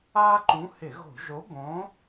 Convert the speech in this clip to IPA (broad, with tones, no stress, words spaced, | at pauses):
aː˦ǃũ˨˥hɪ˧˩˧ɣo̤˧˩˧ ʒo˨˥bõ˨˥